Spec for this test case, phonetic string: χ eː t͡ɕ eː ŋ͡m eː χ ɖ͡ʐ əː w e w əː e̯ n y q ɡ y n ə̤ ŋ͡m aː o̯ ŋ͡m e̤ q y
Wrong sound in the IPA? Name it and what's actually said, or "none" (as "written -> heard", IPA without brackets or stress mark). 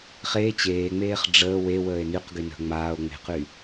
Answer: none